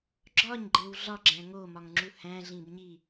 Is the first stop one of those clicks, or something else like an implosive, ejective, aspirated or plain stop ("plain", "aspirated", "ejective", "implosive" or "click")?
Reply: click